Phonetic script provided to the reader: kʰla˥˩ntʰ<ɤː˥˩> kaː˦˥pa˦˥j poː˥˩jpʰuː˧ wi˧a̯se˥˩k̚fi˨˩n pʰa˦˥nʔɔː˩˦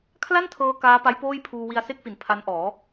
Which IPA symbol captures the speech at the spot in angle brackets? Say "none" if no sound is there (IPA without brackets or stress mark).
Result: ɤː˧